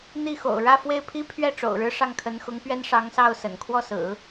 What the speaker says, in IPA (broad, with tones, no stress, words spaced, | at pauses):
n̪i˥˩xo̰˨˩ʊ̯ ɻä˥˧fwe˥˩ɪ̯pʰi˥pʰɥɛ˥˩ ʈ͡ʂo̰˨˩ʊ̯ɻɻ̩˥ ʂɑ˥˩ŋkʰə˧˥nxʊ˧˥ŋ pɥɛ˥n ʂɑ˧˥ŋsɑ˥˩ʊ̯ sə̰˨˩n kʰwɔ˥˩sɹ̩˨˩˦